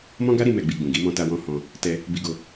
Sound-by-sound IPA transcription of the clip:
m ɔ̃˦ ɡ a˦ ɾ i˧ m ɛ˨ ɡ͡b i˨ ɡ͡b ũ˨ ɡ i˨˦ m ɔ̃˧ t a˧ w ɔ̃˧ h ɔ̃˧ | t ɛ˧ | b i˧ ɡ o˧

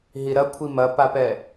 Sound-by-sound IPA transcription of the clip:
ɦ i ɾ ɐ kʷʰ i m ɐ p a p ɛ

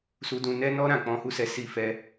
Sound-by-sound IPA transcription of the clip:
s u˧ d ũ˧ n ɛ˧ n ɔ˧ ɾ ã˨ k͡p ɔ̃˨˦ h u˦ s ɛ˧ s i˦ f ɛ˦

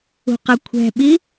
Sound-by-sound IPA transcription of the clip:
ṳ q ʌ kʷʰ ɛ̤ ɓ i

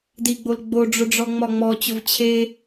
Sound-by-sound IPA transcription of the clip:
d i ɡ͡b o l ɡ͡b o ɖ͡ʐ ʊ ɖ͡ʐ ɔ ŋ͡m ɒ ŋ͡m ɔ t͡ɕ ʊ v t͡ɕʰ e

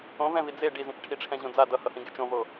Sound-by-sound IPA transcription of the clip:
õ v ɛ̃ v i d͡z e ɖ i z ĩ t͡ʃ ʈʰ i ʈ͡ʂʰ ɛ̃ ʑ õ d͡z a d ʌ h ʌ h ĩ ɡ e t͡ʃ õ v o

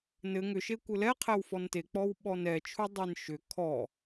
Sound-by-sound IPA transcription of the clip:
n ɘ ŋ ʏ ʃ e kʷ ɘ l ɛ qʰ æ w f ɔ n t e k͡p ɔ w ɓ ɔ n ɛ t͡ʃʰ u dˤ e n ʃ ʏ kʰ ɔ

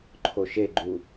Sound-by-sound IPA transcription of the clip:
ǃʰ o ʃ e ɡ͡ǃ u

